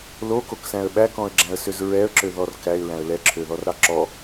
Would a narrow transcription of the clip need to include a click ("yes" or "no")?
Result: yes